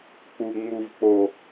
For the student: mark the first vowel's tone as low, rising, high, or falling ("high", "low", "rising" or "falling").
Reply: low